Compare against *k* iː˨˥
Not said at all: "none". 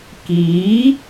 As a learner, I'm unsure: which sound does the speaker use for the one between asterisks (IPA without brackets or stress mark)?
k